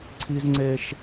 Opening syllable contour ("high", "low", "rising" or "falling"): high